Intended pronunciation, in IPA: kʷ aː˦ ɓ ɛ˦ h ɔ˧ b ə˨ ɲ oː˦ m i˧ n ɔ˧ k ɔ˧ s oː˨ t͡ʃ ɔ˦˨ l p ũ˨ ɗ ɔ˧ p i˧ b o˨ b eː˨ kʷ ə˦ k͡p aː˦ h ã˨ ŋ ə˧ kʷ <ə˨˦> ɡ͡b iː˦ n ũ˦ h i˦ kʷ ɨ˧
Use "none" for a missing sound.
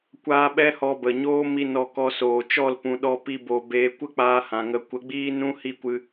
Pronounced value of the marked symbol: ə˨˦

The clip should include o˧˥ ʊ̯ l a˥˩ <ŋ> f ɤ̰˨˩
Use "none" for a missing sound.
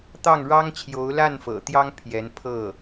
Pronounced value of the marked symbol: n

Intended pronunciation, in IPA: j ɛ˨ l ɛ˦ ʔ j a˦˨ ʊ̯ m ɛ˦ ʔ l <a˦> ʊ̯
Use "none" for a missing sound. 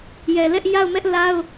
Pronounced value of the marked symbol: a˦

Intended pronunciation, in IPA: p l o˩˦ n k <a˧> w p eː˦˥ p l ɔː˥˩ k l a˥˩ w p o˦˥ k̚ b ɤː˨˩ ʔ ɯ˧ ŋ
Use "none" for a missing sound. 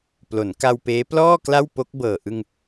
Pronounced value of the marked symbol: a˧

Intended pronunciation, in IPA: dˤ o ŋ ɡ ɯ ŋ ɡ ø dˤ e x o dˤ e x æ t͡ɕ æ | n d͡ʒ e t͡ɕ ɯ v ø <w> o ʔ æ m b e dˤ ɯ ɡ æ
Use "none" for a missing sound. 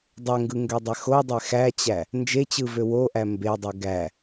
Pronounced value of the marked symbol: w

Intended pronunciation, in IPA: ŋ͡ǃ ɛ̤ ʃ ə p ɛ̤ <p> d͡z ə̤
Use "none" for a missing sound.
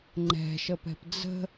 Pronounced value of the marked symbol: p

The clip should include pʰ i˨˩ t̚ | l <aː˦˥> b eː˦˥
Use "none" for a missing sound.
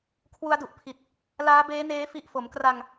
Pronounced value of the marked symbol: aː˦˥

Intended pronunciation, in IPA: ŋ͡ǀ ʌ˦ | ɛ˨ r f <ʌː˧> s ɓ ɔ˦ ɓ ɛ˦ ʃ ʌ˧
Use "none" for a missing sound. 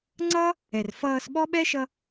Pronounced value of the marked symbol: ʌː˧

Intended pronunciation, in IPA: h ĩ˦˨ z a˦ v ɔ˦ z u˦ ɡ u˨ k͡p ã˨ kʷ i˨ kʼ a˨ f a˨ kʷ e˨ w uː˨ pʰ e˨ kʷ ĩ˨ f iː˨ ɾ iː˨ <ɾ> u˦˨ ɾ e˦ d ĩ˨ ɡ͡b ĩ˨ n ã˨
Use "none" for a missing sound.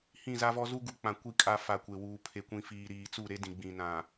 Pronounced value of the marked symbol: t͡s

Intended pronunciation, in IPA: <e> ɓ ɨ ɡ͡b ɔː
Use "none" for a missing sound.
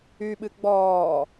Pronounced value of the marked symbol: y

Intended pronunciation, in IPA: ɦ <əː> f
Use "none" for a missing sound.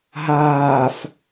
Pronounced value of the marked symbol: aː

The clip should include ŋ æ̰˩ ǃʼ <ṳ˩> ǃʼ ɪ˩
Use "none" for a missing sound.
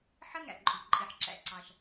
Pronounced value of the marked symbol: ṳ˩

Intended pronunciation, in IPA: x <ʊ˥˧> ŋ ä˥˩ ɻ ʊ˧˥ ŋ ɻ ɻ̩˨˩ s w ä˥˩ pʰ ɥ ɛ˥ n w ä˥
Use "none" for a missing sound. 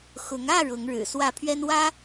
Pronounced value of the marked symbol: ʊ˧˥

